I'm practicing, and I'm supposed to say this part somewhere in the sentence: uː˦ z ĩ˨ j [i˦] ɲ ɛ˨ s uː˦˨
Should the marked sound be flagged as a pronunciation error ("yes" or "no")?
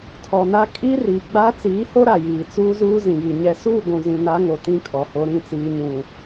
yes